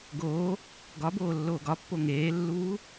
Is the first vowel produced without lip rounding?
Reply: no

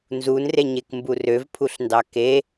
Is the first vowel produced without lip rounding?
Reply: no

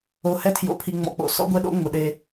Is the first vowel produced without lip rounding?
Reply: no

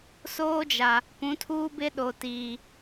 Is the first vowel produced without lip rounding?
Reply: no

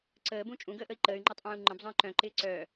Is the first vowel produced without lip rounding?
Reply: yes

